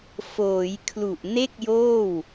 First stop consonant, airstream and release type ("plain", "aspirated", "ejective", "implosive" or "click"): aspirated